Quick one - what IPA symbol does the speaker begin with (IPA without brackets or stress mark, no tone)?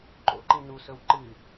ǃ